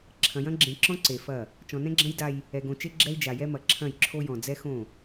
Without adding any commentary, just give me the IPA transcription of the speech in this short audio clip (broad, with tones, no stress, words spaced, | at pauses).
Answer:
ǁʰɐ̃˨jɐ̃˦ɡ͡ǁẽ˨ǁɔ̃˦ ǀe˨fɐ˦˨ | t͡ʃɔ̃˨nɛ̃˦ɡ͡ǁɐ̃˦j da˦j | ɛ˨ɡõ˨t͡ʃe˦ ɡ͡ǁɛ˦i̯d͡ʒa˨jɛ˦mɐ˨ ǁʰɐ̃˦˨jǁʰo˦jɔ̃˨ d͡zɛ˦xõ˦˨